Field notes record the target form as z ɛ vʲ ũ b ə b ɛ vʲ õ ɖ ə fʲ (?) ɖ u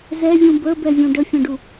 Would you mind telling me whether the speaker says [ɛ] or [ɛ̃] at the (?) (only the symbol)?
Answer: ɛ̃